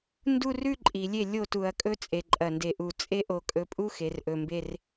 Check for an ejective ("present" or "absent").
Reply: present